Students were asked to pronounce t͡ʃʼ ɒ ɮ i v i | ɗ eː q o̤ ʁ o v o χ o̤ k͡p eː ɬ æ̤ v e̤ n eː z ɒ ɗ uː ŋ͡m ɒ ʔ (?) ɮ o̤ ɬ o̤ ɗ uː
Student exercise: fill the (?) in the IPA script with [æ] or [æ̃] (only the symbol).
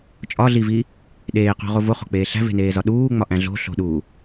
æ̃